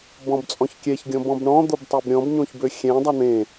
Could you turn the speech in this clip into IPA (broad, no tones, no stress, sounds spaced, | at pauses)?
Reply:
b ɔ̃ b t͡sʼ ɔ̃ ç kʲ ɛ ç ɡʲ ɔ̃ b ɔ̃ b ɳ ɔ̃ d̪ o b tˤ e b ɾʲ ɔ̃ b ɲ õ ç b ø xʲ ɛ̃ dˤ a n̪ ẽ